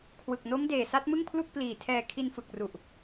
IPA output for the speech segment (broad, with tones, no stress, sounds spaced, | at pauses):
kʰ w ɯ˨˩ k̚ n o˦˥ m d eː˨˩ s a˦˥ t̚ m ɯ˥˩ ŋ pʰ l u˥˩ k̚ p l iː˨˩ tʰ ɛː˧ kʰ i˧ n f ɯ˨˩ k̚ r u˨˩ ʔ